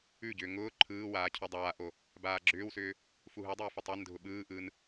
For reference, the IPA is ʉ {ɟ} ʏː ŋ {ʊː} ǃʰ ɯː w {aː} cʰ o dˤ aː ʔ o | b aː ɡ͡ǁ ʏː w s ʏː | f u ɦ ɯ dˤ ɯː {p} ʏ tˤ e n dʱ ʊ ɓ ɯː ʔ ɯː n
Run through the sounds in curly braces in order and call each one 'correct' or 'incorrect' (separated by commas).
correct, correct, correct, incorrect